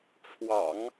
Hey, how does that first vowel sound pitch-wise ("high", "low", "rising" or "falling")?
low